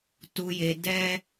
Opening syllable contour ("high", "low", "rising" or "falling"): low